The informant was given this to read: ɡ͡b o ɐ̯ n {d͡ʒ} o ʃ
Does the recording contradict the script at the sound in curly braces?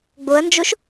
no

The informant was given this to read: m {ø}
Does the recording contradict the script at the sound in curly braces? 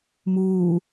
yes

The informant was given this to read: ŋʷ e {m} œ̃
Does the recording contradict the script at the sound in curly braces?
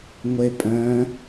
yes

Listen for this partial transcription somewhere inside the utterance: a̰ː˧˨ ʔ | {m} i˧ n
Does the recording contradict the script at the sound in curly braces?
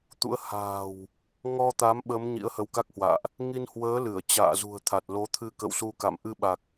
yes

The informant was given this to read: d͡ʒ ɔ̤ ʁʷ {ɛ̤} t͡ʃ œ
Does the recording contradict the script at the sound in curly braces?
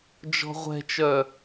no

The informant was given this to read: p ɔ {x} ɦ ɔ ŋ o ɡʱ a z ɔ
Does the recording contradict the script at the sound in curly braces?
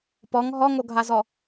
yes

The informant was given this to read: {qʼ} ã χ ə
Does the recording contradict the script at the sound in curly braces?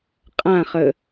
no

